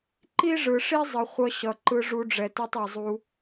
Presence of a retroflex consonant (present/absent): present